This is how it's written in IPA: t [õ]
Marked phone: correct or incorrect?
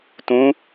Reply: incorrect